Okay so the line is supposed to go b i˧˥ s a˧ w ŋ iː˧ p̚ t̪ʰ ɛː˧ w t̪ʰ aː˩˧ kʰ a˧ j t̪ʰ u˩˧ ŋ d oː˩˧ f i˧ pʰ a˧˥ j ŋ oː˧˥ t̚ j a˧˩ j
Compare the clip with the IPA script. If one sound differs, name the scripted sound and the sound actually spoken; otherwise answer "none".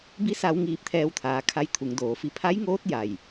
none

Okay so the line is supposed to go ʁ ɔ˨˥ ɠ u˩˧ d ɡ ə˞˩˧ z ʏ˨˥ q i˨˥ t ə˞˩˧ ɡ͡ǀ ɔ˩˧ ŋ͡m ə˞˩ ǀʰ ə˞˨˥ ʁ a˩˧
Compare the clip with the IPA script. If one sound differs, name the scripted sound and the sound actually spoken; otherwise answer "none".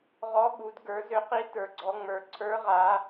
none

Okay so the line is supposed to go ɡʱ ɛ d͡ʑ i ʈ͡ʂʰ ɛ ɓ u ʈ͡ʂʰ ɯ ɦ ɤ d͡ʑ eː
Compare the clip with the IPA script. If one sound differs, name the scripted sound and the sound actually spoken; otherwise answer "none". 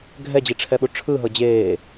none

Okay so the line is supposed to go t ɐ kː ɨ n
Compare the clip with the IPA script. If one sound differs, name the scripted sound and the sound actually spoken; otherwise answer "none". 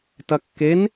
ɨ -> e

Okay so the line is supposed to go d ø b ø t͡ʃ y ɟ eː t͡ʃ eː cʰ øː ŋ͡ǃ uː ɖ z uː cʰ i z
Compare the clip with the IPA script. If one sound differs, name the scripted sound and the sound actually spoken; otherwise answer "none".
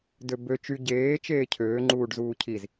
none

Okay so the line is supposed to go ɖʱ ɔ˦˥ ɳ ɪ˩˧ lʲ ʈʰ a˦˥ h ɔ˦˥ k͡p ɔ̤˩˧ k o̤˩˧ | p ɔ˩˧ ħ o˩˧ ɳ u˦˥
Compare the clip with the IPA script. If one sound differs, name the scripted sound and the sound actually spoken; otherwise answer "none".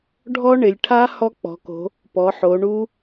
none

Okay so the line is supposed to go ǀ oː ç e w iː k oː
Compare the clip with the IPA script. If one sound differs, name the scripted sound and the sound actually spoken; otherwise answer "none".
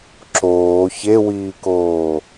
ǀ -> ǁ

